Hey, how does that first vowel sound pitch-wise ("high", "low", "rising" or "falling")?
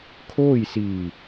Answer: falling